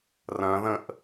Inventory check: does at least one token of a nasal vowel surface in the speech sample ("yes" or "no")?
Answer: yes